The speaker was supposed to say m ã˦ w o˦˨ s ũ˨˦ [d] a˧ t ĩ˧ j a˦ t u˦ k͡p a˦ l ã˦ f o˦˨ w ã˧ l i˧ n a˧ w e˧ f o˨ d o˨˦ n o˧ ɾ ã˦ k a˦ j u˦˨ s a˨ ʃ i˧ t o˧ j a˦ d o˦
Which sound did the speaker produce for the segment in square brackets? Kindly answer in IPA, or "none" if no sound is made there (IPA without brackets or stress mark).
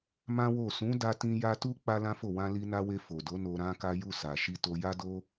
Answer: d